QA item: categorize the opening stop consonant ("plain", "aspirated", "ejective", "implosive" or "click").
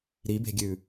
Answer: plain